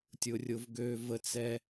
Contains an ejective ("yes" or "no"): no